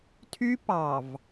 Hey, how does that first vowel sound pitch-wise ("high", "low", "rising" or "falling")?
high